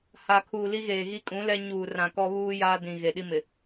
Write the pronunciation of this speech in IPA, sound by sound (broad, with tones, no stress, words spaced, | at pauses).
ha˨kʰuː˨li˦ɣeː˨ ɣi˦kʼũ˨˦lɛ˦ ɲuː˨ rã˨kɔ˦βuː˦ jaː˦dĩ˨ɣe˨ɗi˦ mɪ˨